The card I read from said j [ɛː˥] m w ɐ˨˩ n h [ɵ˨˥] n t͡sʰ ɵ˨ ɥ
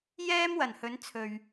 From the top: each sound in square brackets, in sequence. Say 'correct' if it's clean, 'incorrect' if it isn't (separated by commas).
correct, incorrect